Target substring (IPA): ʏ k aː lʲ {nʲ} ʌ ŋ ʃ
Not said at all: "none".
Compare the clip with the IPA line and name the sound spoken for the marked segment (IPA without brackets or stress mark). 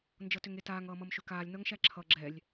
n